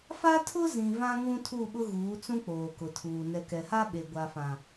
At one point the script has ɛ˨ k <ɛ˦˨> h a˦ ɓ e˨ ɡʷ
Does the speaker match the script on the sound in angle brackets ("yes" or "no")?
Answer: no